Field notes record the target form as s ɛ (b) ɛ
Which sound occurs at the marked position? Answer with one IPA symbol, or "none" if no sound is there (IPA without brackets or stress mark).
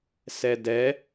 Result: d